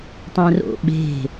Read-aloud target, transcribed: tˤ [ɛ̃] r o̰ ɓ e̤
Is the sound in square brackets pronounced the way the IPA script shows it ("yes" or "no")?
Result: yes